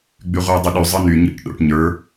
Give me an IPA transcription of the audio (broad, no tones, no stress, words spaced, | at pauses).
ɡ͡byʁʷɯːdˤiɗy zˤɯny ɲḭʈ ɗo̰ʈ ɲə˞